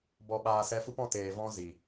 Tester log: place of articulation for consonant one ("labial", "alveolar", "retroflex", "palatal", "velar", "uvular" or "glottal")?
labial